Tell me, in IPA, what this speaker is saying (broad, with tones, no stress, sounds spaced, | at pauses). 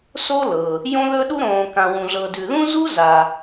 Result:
s o˥ l ɤ˨ | j õ˥ ð ɵ˥ ɗ u˥ ɾ õː˨ k ã˨ w ũ˨ ɮ ɤ˨ d ʉ˨ ð ũ˥ z u˥ z a˨